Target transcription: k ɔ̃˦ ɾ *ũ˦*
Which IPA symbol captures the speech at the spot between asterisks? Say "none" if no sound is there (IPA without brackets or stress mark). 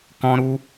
u˦